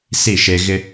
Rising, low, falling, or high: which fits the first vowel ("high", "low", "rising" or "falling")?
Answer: falling